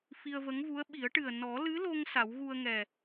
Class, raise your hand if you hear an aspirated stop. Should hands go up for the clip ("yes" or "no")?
no